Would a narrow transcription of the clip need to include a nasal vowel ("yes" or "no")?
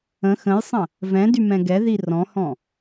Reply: yes